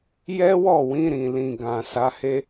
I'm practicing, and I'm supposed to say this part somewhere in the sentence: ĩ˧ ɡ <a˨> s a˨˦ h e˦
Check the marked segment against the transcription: incorrect: ã˨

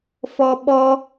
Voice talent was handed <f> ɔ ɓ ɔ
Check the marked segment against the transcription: correct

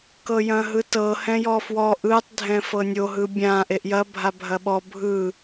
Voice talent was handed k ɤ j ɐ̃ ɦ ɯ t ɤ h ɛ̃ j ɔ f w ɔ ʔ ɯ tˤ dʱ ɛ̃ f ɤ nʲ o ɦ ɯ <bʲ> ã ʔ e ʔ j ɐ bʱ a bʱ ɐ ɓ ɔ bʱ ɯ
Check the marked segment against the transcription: correct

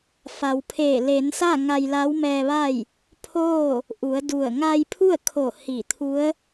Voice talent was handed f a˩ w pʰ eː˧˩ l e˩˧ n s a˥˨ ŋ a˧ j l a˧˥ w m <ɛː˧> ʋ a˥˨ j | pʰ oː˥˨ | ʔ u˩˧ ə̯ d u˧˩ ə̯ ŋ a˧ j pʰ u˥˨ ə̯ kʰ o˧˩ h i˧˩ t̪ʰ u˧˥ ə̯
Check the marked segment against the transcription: correct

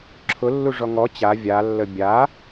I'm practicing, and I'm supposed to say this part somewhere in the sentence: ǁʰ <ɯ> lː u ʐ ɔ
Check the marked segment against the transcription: incorrect: ʊ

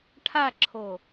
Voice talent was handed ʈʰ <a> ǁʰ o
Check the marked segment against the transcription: correct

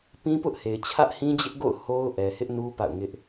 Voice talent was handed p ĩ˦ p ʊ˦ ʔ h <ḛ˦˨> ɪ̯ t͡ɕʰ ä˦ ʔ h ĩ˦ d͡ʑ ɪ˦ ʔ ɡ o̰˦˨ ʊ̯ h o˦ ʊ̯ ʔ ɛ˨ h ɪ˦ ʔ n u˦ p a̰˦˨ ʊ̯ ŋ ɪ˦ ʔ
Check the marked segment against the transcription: incorrect: e˨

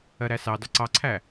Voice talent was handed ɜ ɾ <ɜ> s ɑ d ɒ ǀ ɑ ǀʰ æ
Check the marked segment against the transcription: incorrect: æ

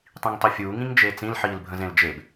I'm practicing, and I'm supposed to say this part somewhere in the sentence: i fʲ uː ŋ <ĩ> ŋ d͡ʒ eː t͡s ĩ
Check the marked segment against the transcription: correct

